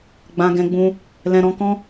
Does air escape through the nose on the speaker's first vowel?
yes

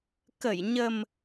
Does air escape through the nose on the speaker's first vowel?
no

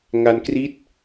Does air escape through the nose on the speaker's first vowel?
no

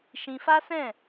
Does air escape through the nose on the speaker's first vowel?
yes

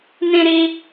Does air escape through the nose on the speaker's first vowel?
yes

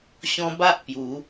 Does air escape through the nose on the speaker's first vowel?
yes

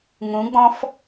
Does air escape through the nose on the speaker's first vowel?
yes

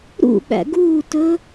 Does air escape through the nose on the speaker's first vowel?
no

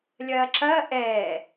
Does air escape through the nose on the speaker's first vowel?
no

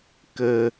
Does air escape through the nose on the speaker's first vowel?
no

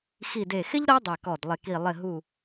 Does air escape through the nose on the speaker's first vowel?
no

